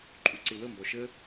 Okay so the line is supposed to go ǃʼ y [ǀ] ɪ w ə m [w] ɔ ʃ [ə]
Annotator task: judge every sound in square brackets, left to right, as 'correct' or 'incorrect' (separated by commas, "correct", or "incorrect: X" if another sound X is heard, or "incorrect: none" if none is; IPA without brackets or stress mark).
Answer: correct, incorrect: b, correct